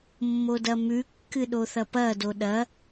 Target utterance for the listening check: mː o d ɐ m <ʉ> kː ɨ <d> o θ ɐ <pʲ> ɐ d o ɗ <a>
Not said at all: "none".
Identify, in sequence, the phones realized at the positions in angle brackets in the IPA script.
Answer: ʉ, ɗ, p, ɐ

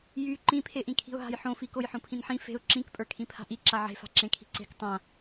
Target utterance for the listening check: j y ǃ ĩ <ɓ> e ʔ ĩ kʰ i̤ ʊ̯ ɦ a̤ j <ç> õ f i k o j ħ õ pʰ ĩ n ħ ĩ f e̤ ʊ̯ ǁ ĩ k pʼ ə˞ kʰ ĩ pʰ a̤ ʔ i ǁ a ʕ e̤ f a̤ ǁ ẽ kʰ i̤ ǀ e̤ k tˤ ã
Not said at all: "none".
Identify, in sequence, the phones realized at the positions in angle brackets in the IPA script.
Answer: pʰ, ħ

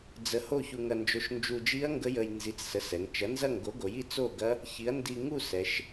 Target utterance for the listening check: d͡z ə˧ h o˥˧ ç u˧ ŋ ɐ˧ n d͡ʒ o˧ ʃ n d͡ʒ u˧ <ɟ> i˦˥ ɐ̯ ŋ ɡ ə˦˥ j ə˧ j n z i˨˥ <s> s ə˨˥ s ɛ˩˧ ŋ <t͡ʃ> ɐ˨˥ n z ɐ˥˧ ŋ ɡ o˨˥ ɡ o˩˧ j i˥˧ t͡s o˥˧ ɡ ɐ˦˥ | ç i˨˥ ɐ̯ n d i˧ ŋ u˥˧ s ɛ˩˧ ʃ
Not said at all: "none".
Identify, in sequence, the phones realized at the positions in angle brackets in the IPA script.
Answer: d͡ʒ, t͡s, t͡ʃ

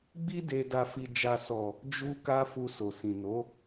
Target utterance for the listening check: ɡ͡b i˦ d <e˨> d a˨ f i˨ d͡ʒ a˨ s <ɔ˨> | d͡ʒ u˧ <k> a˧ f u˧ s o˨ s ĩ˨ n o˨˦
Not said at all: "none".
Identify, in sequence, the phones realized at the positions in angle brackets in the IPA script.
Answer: e˧, ɔ˨, k

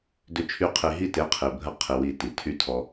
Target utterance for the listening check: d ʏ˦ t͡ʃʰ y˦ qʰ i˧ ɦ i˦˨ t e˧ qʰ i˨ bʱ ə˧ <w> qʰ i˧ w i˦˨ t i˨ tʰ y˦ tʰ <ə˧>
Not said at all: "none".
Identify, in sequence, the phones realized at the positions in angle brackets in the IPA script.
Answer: none, ɔ˧

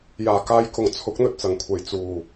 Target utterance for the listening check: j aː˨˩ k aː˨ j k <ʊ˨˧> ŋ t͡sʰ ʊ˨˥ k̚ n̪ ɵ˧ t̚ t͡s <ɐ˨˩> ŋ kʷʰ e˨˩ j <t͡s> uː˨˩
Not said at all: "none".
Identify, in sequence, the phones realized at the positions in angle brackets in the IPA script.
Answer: ʊ˨˩, ɐ˨˩, t͡s

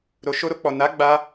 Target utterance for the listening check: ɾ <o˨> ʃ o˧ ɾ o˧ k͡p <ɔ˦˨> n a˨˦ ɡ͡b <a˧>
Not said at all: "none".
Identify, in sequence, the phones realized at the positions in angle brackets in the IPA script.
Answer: o˨, ɔ˨, a˧

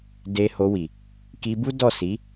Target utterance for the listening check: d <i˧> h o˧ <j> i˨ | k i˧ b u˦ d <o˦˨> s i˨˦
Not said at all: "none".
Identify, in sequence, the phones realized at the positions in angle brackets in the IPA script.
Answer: e˧, w, ɔ˦˨

